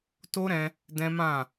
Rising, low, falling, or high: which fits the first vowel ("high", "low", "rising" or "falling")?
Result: high